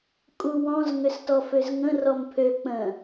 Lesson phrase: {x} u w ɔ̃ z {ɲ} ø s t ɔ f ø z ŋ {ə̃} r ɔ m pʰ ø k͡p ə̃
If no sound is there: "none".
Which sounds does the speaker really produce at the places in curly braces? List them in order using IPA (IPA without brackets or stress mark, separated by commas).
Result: kʼ, ŋ, ə̃